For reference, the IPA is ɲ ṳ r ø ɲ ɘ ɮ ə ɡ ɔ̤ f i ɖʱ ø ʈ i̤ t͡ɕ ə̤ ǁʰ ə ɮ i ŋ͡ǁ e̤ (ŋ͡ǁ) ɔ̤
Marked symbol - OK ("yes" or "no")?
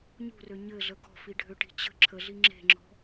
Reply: yes